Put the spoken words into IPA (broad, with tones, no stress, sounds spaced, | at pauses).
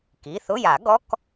k i˩˧˩ θ ʊ˧˥˧ j a˨˩˦ ɡ ɔ˧˥˧ k